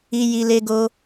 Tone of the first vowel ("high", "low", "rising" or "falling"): high